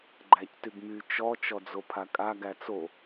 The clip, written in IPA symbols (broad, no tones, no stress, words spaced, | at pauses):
ɡ͡ǃæctyɡmy t͡ʃɔ t͡ʃɔd͡zopʰakʼa ɡæt͡so